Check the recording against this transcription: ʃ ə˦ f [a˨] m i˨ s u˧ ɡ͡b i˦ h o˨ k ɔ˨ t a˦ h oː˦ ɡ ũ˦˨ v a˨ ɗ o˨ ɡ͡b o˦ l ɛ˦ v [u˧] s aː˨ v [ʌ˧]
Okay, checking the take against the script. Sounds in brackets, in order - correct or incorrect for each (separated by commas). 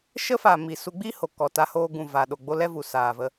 correct, incorrect, incorrect